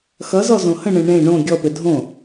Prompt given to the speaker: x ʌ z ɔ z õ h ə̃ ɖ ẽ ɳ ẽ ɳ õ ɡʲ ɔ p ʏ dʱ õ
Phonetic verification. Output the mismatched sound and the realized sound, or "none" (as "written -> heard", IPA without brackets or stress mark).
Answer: ɖ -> ɳ